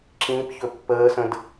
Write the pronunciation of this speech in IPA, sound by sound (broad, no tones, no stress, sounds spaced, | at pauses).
ǁ ĩ p ç ɵ pː əː s ə̃ d